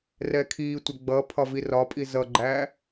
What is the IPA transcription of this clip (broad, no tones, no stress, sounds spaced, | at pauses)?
r ɛ kʰ iː tʷ ɛ ɡ͡b ʌ pʰ ɒ v i r ɒ pʼ i z ʌ ɡ͡ǃ æː